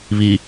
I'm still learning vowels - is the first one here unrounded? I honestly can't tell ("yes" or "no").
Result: yes